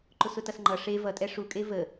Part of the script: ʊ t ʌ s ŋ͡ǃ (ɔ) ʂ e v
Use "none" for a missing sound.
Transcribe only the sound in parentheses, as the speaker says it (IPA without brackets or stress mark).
ʌ